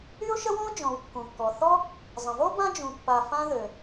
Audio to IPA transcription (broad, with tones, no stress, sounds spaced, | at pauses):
y˥ ʊ̯ ʃ ə˥ w ɔ̃˥ ʊ̯ d͡ʒ ɔ̃˩ w kː ũ˩ kː ɔ˩ θ ɔ˥ | zˤ ə̃˩ v o˥ b ã˥ d͡ʒ ũ˩ pː a˩ f ã˥ ð ø˩